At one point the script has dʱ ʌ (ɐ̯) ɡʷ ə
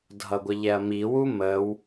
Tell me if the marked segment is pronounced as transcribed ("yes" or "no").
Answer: no